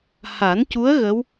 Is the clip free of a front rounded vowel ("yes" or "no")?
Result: yes